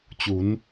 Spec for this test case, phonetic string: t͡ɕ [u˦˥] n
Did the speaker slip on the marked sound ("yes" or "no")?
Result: yes